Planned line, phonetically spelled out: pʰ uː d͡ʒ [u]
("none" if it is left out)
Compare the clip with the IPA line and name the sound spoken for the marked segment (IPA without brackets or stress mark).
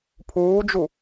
u